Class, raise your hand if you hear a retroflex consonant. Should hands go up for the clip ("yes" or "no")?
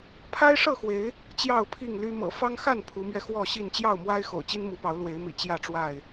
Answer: yes